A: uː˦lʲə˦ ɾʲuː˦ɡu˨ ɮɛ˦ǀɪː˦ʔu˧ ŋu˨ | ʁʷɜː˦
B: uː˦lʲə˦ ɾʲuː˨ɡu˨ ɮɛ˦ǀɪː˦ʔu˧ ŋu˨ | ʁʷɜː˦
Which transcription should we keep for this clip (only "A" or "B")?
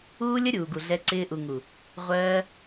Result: B